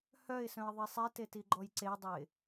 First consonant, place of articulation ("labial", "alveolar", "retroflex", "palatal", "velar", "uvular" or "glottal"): glottal